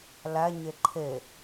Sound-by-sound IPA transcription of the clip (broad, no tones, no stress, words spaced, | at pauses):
læ ɲeǃʰe